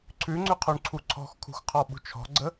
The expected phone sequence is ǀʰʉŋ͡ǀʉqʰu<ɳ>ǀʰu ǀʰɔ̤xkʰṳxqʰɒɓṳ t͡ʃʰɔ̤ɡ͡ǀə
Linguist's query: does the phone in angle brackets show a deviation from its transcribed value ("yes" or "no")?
no